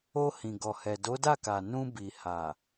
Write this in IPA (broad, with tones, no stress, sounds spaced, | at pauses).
o˧ h ĩ˨ ɡ ɔ˨ h ɛ˨ d o˨˦ d a˦˨ k a˨ n ũ˧ b i˨ h a˨